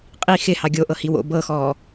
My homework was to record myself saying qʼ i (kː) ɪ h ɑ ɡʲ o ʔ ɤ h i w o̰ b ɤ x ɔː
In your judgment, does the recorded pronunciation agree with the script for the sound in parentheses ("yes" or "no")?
no